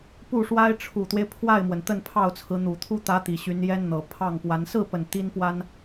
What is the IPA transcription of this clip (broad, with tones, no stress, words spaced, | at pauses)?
pu˥˩ʂwa˥ɪ̯ ʈ͡ʂʰu˨˩t̪we˦ɪ̯ pʰwa˥˩ɪ̯mwə˩n t̪ə˥˧npʰɑ˥˩ʊ̯t͡sʰɹ̩˧˥ n̪u˨˩t̪ʰu˥ t̪ä˧˥ t̪i˨˩ɕy˧˥njɛ˥nn̪ɤ˨˩ pʰɑ˥˩ŋpwa˧˥n sɹ̩˥˩pə˨˩n t̪i˥npwa˥n